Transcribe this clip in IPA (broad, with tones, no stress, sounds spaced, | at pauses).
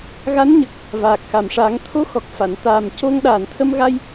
ɣ a˧˥ n ɲ ə˨˩ k̚ | v aː˨˩ k̚ x a˨˩ m ʂ aː˨˩˦ ŋ t̪ʰ o˧˥ x ɔ˨˩ k̚ f a˨˩˨ n t̪ aː˨˩ m c o˧ ŋ ɗ aː˨˩ n t̪ʰ ə˧ m ɣ a˧ j